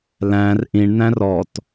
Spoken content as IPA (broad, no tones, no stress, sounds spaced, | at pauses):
l æ̃ r ʔ ĩ ɳ n æ̃ r ɔ t